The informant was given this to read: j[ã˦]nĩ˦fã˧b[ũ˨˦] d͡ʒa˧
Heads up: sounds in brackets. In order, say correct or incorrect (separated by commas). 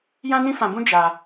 correct, incorrect